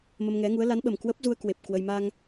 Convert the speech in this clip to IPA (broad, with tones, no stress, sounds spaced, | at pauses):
m ə˧ m ŋ ɛ˨˦ ŋ u˨˦ ə̯ l a˨˦ n ɓ ə˨˩ m k w ə˦˥ p̚ z u˧ ə̯ k w e˨˩ p̚ k w ə˧ j m a˧ ŋ